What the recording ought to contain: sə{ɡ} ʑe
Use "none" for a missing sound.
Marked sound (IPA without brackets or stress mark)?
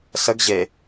ɡ